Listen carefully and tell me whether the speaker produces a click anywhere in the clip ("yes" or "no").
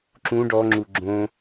yes